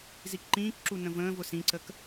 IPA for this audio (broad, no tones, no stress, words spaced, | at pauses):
zikǃĩːkǁu nə̃və̃ːvʊ sĩǀək